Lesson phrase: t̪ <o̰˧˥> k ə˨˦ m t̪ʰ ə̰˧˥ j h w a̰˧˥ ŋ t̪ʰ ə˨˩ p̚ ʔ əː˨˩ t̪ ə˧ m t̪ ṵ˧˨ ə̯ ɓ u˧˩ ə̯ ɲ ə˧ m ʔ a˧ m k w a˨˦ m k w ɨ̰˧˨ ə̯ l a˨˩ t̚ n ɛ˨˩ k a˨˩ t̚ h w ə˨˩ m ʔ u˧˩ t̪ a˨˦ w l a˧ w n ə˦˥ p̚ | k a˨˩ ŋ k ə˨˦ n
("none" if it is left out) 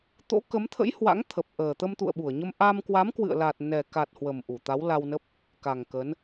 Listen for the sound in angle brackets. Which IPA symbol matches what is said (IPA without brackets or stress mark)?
o̰˧˥